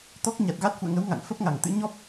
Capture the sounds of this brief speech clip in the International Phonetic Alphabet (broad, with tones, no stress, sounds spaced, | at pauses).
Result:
t̪ ɔ˦˥ k̚ ɲ a˨˩ t̚ ɣ a˦˥ t̚ f ṵ˧˨ ə̯ ŋ ə˨˦ w ŋ a̰˧˨ ŋ f ə˦˥ p̚ ŋ a˨˩ ŋ t̪ ɨ̰˧˥ ɲ ɔ˦˥ p̚